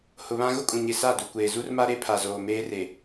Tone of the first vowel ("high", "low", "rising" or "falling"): low